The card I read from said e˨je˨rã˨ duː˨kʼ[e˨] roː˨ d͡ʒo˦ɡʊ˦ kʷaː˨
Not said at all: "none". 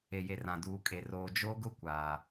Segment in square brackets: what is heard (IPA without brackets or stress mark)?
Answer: e˨